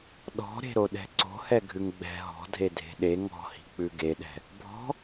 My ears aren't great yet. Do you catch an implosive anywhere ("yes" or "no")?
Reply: yes